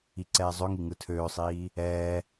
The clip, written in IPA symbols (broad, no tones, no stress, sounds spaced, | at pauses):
i ǀ ɛː zˤ ø ŋ i ŋ ɯ tʰ øː sˤ iː | ɛː